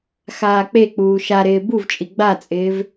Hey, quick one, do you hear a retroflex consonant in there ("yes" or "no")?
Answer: no